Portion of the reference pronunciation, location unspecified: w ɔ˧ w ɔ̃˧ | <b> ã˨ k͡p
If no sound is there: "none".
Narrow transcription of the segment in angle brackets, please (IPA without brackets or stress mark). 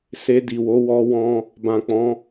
b